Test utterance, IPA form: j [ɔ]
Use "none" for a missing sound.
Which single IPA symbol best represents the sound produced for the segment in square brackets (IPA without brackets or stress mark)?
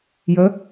ə